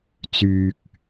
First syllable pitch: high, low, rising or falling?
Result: low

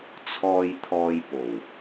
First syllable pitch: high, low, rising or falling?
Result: low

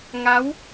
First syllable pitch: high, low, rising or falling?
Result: rising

